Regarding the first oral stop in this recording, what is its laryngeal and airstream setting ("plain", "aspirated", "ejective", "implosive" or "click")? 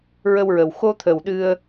aspirated